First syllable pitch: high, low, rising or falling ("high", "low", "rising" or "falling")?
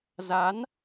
rising